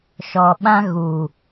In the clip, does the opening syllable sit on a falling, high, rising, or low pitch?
low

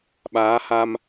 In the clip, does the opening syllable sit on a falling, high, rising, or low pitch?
rising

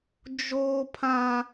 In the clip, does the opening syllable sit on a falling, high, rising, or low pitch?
high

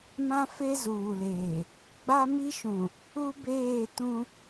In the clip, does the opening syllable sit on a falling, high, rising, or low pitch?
high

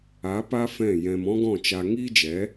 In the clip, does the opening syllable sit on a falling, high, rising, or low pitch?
rising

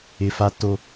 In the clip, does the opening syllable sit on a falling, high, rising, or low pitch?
high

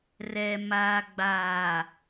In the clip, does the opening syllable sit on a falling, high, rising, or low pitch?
low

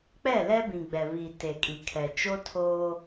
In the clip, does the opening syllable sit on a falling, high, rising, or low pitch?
falling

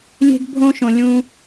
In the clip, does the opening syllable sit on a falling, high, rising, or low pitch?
high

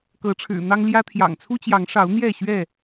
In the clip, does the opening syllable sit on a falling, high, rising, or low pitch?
rising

